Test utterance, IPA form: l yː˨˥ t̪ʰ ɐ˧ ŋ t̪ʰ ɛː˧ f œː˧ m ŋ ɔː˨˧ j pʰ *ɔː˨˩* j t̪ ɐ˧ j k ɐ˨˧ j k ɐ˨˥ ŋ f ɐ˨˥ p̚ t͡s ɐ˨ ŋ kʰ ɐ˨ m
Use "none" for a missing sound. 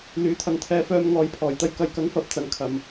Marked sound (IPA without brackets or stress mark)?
ɔː˨˩